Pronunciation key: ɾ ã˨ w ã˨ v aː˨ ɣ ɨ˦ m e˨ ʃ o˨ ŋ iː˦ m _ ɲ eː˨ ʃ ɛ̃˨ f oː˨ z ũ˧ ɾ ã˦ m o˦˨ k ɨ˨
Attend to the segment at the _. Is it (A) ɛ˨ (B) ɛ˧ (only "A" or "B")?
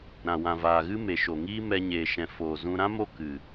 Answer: B